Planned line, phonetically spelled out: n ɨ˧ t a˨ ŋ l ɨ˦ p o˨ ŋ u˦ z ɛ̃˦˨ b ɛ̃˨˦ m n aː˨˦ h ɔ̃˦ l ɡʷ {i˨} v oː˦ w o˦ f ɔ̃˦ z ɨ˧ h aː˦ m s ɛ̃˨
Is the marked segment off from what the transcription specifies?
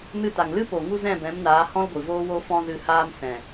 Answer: no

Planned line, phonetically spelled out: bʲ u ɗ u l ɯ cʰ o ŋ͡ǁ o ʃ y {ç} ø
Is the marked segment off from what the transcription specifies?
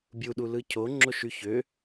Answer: no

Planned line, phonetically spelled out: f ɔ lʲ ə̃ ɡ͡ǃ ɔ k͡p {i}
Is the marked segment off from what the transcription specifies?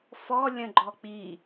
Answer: no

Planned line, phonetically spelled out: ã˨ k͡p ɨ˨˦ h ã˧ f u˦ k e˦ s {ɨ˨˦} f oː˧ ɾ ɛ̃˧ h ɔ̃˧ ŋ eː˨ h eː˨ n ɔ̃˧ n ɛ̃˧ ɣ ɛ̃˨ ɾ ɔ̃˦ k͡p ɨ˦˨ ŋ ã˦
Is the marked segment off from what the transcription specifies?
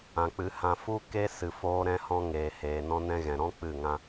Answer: yes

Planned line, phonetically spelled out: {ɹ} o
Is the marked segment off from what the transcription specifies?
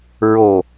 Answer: no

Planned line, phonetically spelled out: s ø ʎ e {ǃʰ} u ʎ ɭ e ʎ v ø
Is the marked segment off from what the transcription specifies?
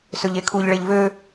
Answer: yes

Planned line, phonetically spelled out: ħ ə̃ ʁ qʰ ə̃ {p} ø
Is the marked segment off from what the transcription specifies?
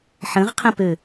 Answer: no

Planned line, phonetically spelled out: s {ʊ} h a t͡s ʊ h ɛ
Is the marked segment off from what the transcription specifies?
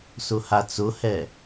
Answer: no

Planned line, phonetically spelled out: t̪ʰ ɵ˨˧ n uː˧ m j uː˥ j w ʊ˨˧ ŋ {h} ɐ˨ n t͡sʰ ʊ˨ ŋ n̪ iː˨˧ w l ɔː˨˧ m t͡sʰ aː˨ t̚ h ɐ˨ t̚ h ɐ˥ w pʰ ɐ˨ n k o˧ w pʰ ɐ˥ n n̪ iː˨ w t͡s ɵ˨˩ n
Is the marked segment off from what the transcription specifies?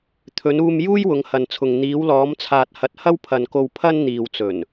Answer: no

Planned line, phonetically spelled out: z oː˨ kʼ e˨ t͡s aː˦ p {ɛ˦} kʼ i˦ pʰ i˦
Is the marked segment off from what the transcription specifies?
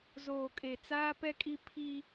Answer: no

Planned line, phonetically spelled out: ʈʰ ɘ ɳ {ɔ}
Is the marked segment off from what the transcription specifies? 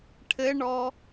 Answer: no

